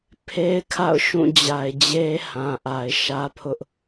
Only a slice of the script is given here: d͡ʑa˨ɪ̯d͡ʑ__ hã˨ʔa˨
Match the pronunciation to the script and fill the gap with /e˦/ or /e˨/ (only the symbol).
e˦